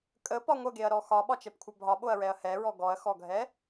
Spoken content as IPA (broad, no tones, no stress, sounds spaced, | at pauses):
kʼ ə p ɒ ŋʷ ə ɡ e ɐ̯ ɾ ɔ x ɒ ɓ ɒ t͡ʃ ɛ p kʷʰ ə bʱ ɒ ɓ o ɐ̯ ɹ ɛ ɐ̯ h ɛ ɹ ɔ ɡ ɔ ɐ̯ x ɔ ɡʱ ɛ